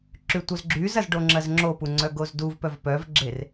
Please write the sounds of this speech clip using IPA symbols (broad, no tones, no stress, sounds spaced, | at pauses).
ǁ y tʷ œ z ɡ͡ǁ y z ɐ z ɖ o ŋ͡ǁ ɐ z ŋ͡ǁ o p u ŋ͡ǀ œ ɡ o z d u v p œ v p œ v ɡ͡ǁ e r